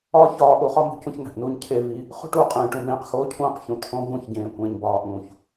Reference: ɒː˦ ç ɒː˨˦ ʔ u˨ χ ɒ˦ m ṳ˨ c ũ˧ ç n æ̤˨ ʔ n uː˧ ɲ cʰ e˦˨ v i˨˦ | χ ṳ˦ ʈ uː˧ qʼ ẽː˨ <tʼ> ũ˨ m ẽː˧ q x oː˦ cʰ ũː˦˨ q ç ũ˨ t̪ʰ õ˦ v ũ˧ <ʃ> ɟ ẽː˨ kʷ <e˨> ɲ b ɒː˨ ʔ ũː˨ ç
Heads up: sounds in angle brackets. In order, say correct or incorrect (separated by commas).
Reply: incorrect, incorrect, incorrect